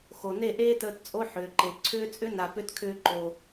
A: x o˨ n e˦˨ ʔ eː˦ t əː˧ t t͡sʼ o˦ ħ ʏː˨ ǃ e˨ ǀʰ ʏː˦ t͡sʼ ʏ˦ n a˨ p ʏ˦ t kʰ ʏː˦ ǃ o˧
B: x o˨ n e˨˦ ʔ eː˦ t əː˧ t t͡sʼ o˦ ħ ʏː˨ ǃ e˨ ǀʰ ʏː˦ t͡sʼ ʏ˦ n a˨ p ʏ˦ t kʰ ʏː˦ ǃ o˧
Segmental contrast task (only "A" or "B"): A